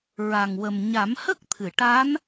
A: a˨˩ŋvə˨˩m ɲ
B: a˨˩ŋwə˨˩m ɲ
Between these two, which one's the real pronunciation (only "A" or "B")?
B